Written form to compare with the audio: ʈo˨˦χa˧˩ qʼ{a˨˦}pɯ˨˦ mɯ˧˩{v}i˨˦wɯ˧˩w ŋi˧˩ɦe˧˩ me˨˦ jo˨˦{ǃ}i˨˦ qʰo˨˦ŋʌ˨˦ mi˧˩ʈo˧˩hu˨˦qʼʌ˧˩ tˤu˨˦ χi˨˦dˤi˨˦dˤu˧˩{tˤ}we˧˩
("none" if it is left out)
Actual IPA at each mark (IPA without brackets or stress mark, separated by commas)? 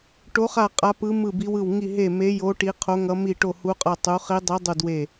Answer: a˨˦, b, ʈ, d